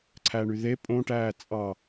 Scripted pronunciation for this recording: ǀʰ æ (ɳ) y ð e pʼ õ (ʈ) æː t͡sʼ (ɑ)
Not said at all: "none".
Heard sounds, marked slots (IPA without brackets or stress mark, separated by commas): ɳ, ʈ, ɑ